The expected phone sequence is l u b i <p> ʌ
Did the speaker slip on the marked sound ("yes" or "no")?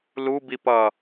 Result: no